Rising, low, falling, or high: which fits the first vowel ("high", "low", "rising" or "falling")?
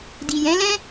low